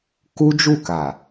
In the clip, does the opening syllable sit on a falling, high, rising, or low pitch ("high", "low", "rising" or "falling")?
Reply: high